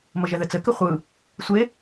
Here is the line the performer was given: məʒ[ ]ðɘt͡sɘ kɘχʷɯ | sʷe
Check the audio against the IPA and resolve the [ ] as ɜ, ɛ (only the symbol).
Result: ɛ